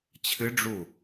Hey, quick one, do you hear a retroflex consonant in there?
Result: yes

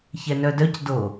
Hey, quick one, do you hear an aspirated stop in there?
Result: no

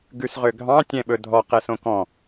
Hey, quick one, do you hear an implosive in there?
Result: yes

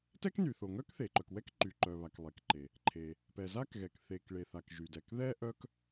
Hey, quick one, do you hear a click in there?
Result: yes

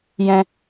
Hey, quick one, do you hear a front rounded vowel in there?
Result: no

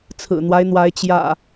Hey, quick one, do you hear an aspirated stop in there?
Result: yes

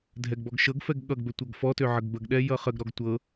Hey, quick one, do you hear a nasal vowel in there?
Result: no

